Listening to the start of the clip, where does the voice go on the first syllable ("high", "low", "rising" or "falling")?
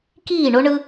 falling